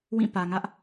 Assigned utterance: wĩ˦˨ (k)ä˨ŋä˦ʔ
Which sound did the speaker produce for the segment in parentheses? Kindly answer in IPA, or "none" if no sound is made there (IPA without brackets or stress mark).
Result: p